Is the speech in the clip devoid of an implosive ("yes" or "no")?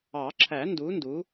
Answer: yes